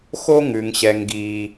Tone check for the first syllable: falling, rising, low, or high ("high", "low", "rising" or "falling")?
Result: high